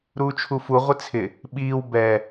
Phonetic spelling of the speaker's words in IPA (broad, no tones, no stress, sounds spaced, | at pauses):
ɾ uː t͡ʃʰ u f u ʁʷ ɪ t͡sʰ ɪ | ɓ iː w b ɛ